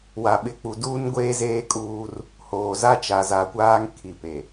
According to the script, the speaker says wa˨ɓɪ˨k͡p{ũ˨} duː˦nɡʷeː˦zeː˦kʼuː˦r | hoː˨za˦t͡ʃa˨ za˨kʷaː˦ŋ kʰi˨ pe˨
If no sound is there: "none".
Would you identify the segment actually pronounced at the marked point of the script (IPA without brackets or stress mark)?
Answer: u˨